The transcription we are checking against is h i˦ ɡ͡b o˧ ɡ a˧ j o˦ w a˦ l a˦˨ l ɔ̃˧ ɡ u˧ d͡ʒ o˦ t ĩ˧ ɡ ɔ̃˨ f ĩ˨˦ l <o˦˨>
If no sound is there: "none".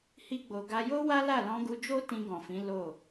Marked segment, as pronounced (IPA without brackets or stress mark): o˦˨